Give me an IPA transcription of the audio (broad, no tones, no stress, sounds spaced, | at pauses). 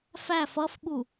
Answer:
f æ f ʌ f ɓ u